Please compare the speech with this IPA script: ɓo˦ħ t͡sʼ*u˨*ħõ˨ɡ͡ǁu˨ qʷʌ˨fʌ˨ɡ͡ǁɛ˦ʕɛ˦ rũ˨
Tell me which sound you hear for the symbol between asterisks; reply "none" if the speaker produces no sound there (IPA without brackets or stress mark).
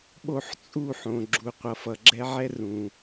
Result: u˦˨